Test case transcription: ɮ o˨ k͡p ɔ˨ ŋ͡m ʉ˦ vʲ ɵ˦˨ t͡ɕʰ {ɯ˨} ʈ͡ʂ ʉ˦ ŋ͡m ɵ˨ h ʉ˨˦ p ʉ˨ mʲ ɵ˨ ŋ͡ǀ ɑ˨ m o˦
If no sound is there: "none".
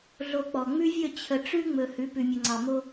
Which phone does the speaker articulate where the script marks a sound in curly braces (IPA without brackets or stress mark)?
ə˨